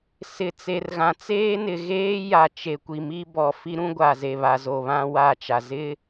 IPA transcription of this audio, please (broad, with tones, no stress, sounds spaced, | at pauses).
s ɪ˨ t͡s e˨ r ɣ ã˨ t͡s eː˦ n ɪ˨ ɣ eː˦ j a˨ t͡ʃ e˨ kʷ i˨ m i˦ b ɔ˨ f i˦ ɾ ũ˦ ɡʷ a˨ z e˨ β a˨ z o˨ β ã˦ w a˦˨ t͡ʃ a˨ z ɪ˦